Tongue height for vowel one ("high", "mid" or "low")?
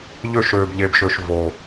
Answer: mid